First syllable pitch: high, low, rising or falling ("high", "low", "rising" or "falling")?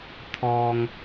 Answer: low